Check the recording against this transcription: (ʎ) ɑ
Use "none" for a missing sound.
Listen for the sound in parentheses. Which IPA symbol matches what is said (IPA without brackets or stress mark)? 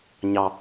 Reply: ɲ